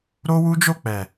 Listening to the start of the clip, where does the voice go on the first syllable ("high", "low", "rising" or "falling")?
high